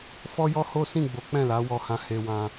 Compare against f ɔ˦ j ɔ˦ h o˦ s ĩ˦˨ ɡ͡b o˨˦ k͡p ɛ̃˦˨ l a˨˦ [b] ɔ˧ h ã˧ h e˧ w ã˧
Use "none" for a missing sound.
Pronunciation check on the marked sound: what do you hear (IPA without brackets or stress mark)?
w